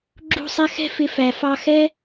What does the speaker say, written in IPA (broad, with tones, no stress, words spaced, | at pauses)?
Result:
ɡ͡ǁṳ˦˨sˤɛ˦xɛ̤˦ fɪ˧fæ˨ fɑ˧xɛ˦